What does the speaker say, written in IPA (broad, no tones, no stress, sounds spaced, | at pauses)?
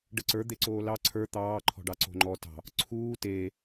ɖ ə ǀ ə˞ d̪ e ǀ oː l ɑ ǀʰ ə˞ t̪ ɑː ǃʰ ɔ̤ ɖ ɑ ǀ o̤ ŋ͡ǃ ɔ t ɑ̤ | ǀʰ uː t eː